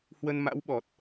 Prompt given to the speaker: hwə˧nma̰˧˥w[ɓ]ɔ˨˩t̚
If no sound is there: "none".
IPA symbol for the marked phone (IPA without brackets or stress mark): ɓ